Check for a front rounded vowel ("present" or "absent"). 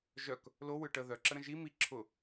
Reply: present